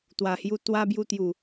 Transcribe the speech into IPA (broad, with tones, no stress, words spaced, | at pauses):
t̪wa˨˩hju˧ t̪wa˧ bju˧t̪ju˨˩